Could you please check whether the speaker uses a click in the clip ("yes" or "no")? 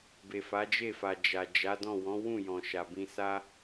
no